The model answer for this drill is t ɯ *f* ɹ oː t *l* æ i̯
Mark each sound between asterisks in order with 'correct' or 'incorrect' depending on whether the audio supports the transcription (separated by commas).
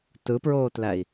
incorrect, correct